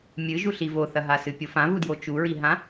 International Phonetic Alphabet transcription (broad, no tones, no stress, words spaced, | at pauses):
mʲɨʒuɬi voθɐɦasɨ pʲofãvudjo t͡ʃuɹiɦã